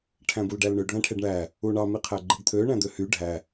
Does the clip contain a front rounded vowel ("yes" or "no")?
yes